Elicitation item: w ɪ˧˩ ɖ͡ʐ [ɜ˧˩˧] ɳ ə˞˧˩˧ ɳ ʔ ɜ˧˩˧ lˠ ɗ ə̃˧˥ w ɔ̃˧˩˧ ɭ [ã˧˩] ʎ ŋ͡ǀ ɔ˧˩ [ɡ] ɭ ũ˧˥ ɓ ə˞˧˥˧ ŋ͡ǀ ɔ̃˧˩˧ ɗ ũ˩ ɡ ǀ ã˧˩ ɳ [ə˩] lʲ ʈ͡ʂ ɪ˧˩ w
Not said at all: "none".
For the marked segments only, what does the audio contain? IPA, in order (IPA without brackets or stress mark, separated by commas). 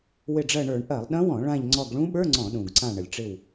ɜ˧˩, ã˧˩, ɡ, ə˩